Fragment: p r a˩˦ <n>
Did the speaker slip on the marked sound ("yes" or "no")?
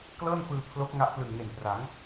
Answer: yes